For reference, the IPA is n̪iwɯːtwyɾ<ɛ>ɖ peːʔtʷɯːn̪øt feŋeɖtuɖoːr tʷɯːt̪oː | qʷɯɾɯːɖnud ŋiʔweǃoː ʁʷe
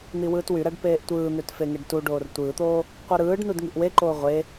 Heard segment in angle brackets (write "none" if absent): æ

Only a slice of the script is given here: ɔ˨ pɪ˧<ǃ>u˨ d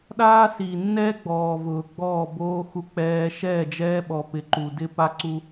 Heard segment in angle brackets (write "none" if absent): ǃ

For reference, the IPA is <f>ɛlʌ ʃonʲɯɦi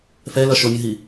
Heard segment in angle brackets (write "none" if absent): f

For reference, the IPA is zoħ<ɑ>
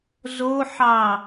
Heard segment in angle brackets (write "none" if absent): ɑ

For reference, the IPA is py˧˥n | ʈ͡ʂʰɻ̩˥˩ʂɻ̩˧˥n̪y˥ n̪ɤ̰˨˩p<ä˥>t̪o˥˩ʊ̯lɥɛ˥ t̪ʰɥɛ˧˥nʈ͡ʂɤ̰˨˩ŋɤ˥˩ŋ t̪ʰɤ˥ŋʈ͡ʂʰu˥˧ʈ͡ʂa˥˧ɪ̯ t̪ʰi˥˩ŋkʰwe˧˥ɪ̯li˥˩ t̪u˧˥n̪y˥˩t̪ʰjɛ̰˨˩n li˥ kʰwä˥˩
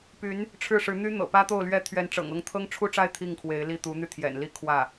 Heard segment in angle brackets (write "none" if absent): ä˥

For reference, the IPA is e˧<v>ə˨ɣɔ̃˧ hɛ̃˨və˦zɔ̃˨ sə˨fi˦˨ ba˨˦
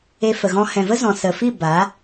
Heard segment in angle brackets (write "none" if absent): f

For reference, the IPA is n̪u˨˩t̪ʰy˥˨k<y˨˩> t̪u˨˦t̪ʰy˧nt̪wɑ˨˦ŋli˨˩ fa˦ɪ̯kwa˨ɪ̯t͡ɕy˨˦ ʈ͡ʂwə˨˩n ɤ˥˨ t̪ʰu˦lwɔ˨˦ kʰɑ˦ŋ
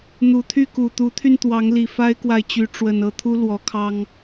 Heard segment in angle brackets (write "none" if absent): u˨˩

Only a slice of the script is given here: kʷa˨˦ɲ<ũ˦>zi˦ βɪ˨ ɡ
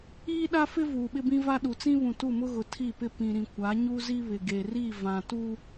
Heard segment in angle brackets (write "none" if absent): u˦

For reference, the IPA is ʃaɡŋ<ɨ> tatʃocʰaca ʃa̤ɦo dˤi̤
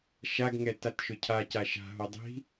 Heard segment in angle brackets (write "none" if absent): ɛ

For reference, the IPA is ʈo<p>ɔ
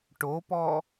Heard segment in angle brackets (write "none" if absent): p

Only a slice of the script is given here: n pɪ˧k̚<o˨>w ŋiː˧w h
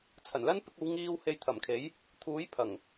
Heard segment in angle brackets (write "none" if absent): o˨˧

